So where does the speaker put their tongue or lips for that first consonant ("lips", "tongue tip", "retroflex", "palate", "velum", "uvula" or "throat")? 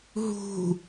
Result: throat